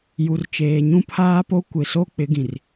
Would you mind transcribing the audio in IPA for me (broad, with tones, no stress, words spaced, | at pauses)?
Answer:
ju˨rt͡ʃeː˨ ɲũ˦pʰaː˦po˦ kʷɪ˨so˦ k͡pɪ˨˦ɡĩ˨r